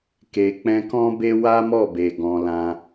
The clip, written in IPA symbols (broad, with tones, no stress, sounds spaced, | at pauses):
k e˨ k͡p ɛ̃˧ k ɔ̃˦ b e˦ w a˦ m ɔ˦˨ b e˨ ɡ ɔ̃˧ l ã˦